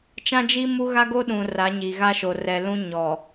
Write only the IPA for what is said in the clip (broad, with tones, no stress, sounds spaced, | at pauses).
t͡ʃ ã˦ d͡ʒ i˦ m u˦ ɣ a˦ ɡ o˦ ɗ ũ˨ r a˨˦ ɲ i˨ ɣ a˦ ʃ o˨ r ɛ˨ l ũ˦ ɲ ɔ˨